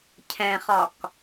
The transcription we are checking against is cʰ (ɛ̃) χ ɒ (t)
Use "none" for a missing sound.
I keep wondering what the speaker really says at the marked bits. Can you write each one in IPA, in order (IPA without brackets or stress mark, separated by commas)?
ɛ̃, k